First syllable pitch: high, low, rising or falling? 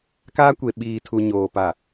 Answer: high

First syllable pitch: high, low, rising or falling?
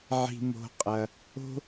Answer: low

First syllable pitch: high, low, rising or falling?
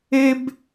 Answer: high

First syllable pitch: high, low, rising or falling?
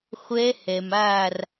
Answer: rising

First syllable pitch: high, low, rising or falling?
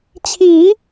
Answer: rising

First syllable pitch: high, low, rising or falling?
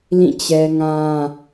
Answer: falling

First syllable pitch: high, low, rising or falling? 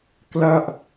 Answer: falling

